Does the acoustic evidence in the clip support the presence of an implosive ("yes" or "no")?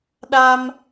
yes